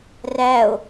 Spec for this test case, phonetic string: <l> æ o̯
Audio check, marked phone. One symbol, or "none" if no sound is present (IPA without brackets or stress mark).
r